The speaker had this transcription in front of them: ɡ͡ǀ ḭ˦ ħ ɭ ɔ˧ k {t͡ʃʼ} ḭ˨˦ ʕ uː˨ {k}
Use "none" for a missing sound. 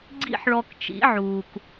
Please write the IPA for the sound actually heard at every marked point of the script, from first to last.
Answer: t͡ʃ, k

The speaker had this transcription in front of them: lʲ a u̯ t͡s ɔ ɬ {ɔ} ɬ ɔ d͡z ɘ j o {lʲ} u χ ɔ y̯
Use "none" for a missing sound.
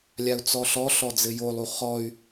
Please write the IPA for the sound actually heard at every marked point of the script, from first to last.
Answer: ɔ, lˠ

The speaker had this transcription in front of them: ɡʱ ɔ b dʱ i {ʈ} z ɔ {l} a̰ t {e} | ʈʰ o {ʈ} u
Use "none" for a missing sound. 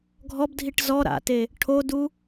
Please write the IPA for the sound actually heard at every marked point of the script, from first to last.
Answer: ʈ, ɾ, e, d

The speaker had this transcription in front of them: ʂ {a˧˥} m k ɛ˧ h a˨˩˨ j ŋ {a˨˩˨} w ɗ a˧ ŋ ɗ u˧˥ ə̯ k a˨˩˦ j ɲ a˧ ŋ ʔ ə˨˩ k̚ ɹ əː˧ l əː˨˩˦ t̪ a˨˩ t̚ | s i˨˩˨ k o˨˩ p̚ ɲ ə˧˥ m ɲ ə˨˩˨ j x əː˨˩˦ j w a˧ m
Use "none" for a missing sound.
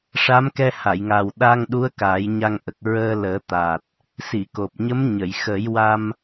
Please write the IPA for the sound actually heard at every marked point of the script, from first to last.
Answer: a˧˥, a˨˩

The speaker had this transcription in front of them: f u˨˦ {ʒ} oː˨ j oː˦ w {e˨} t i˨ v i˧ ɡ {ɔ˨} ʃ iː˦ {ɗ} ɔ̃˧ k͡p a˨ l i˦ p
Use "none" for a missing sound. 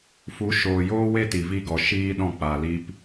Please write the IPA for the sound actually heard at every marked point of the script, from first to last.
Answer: ʃ, e˦, ɔ˨, ɗ

